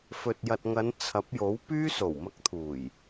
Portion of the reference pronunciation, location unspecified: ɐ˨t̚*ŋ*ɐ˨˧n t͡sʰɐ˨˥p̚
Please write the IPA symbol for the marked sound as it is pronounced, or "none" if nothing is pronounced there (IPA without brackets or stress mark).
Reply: ŋ